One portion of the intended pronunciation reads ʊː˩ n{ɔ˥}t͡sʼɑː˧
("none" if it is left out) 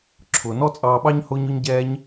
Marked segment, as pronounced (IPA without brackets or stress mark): ɔ˥